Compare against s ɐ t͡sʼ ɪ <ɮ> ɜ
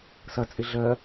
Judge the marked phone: correct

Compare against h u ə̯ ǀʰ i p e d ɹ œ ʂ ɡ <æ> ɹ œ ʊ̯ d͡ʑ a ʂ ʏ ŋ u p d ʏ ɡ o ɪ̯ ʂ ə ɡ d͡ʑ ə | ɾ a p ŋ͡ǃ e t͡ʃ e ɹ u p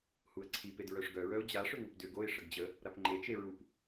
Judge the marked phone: incorrect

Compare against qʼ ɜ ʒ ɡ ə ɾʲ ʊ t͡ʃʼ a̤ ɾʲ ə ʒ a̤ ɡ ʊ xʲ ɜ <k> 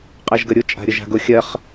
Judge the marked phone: incorrect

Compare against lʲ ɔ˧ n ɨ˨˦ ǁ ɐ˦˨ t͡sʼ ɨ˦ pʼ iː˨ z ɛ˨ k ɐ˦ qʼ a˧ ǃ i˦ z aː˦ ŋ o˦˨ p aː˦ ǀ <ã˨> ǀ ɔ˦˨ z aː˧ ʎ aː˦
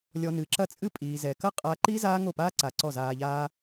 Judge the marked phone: incorrect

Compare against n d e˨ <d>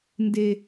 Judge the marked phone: incorrect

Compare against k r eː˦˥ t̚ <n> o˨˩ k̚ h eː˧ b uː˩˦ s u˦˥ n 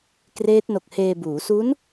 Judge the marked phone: correct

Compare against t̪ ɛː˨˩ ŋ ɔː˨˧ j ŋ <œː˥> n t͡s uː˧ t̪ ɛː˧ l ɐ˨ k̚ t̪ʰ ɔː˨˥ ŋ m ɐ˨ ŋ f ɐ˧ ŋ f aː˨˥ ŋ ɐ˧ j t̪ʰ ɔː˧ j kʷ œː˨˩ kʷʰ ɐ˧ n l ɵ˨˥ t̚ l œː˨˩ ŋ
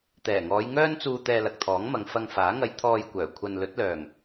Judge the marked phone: correct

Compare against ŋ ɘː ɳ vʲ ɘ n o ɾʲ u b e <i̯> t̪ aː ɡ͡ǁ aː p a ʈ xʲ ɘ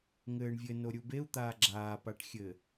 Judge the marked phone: incorrect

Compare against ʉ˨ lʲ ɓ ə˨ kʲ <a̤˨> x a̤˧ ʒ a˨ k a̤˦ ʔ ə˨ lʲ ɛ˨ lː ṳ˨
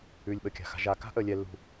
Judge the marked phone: correct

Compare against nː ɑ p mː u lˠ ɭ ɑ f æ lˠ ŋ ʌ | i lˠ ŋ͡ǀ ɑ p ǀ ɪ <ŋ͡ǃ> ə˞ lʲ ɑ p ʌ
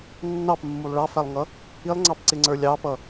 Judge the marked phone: incorrect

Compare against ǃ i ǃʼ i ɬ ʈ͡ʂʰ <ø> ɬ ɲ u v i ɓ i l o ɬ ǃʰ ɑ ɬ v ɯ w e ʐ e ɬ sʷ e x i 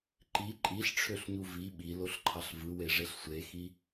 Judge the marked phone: correct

